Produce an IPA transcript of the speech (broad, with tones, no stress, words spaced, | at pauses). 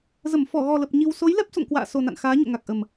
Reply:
zə˧˩m fɔ˧˩ɣɔ˨˩lə˨˩p̚ ɲi˧w so˨˦jlɛ˦˥p̚so̰˧˨ŋ kwa̰ː˧˨so˨˩na̰˧˨n xaː˨˦ ɲo̰˧˨ŋa˨˩k̚ʔə˨˩m